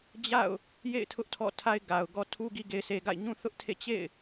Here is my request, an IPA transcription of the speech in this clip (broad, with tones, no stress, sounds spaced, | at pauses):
d͡ʑ a̰˦˨ ʊ̯ | j ḛ˦˨ ɪ̯ tʰ ʊ˦ ʔ tʰ ɔ̰˦˨ tʰ a˦ ɪ̯ ɡ a˨ ʊ̯ ɡ ɔ˦ tʰ u˦ ɡ i˦ ɡ e˦ ɪ̯ sʰ e˦ ɡ a̰˦˨ ɪ̯ ɲ ũ˦ θ ʊ˦ ʔ tʰ ḛ˦˨ t͡ɕ ḛ˦˨ ɪ̯